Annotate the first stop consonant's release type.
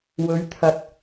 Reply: aspirated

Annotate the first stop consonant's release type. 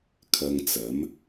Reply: aspirated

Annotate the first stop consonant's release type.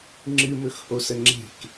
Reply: click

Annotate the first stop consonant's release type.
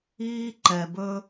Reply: click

